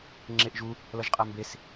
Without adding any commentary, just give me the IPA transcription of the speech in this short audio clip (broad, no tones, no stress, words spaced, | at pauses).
ŋ͡ǁeʔʒu | lʌʒqʼambes